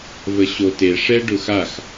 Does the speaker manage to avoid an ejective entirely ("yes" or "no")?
yes